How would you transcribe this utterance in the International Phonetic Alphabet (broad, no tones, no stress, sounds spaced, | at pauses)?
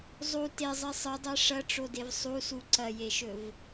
zˤ u t e zˤ i sˤ ɨ dˤ e ʂ ɐ ʈ͡ʂ o d e v sˤ u s u ǀ ɐ j e ʃ ɵ v